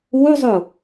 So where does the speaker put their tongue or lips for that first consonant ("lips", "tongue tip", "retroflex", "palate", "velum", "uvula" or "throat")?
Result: tongue tip